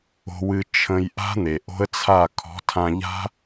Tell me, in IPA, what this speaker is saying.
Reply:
o̤˨wɨ˨ t͡ʃʰə̃˨j ʔa̤˦n̪e˨ʔo̤˦ə̯t͡sʰa˦˨ kʰɔ̤˨˦tʰã˧ʎa̤˦

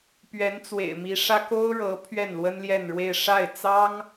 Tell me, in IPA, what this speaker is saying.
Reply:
pɥɛ˧˥nt͡swḛ˨˩ɪ̯mi˧˥ʂä˥ ko˥ʊ̯ɻɤ˧˥ pʰɥɛ˥˩nlwə˥nljɛ˥˧nɻwe˥˧ɪ̯ ʂa˥˩ɪ̯t͡sɑ˥ŋ

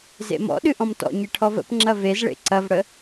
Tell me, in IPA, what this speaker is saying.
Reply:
zḛmɔ̰ɗɨ ʔɔ̃mtɔ̰ɲe ʈʰɔvə̰pŋ͡ǁɐ vezɭḛ ǀɐvɽə

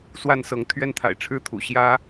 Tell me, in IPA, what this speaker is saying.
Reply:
swa˥˨nsɤ˨˦ŋ t̪ʰɥɛ˦nt̪ʰa̰˨˩ɪ̯ʈ͡ʂʰɻ̩˥˨t̪ʰṵ˨˩ ɕjä˦

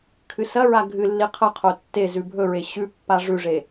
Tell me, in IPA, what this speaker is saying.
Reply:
kʰɨsɐɹa ɡʱɨlːi qʰɐqʰo tːe zʉbʱɵɹe ɕʉpːa ʐʉʐe

